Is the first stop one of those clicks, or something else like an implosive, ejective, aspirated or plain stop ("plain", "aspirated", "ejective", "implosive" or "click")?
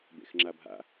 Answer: plain